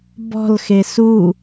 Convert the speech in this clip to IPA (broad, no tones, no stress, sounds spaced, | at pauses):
b ɔ̤ l x e s u